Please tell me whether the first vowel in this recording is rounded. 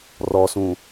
yes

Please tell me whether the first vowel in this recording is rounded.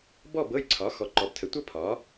yes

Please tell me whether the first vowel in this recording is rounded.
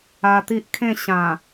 no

